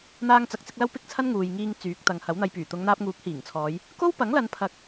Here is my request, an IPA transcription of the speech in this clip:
n̪ aː˧ ŋ t͡s ɐ˨ k̚ t͡s ɪ˧ k̚ l ɐ˥ w p ɪ˥ k̚ t͡sʰ ɐ˥ n ŋ uː˨ j ŋ iː˧ ŋ t͡s yː˨˥ k̚ t̪ ɐ˨˧ ŋ h ɐ˨˥ w n̪ ɐ˧ j p yː˨˩ t̪ ʊ˨˧ ŋ n̪ aː˧ p̚ ŋ uː˨˥ k̚ h iː˨˩ ŋ t͡sʰ ɔː˨˧ j | k o˥ w p ɐ˨˥ ŋ l ɐ˨˧ n pʰ ɐ˧ k̚

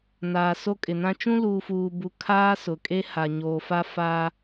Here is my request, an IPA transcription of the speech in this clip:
n aː˨ s o˦ kʼ ɪ˨ n ã˦ t͡ʃ ũ˦ l uː˨ f uː˨ b u˨ kʰ aː˦ s ʊ˨˦ kʼ e˦ h a˨ ɲ oː˨ f a˦ f a˦

